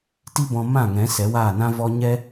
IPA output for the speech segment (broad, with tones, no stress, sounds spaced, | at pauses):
t i˦ b ɔ̃˧ m ã˦˨ ŋ ɛ̃˨˦ s ɛ˨˦ w aː˦˨ n ã˦ v ɔ˦ ɲ ɛ˦